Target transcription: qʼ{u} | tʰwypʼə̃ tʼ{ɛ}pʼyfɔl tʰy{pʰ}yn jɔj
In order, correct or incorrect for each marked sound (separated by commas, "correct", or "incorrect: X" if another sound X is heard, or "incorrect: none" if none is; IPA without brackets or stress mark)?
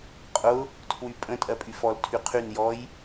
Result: incorrect: ʊ, incorrect: ɜ, incorrect: qʰ